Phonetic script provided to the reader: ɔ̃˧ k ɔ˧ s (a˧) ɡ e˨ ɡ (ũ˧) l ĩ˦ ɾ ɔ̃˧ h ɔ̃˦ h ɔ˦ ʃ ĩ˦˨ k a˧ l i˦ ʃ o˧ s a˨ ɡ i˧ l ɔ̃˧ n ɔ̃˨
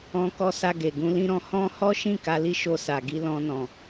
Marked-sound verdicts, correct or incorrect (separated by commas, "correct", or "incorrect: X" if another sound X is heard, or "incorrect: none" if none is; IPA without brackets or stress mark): correct, correct